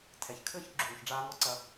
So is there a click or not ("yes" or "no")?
yes